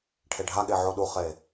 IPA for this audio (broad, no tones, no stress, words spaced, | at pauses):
ʈʰeɖʱaɠe ʕoɗuχe